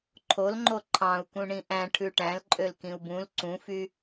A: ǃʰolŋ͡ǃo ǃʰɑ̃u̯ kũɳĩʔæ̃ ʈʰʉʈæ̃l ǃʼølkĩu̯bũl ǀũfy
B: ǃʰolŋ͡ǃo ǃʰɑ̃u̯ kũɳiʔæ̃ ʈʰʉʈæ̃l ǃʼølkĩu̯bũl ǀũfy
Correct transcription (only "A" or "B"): A